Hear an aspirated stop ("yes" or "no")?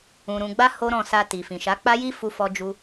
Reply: no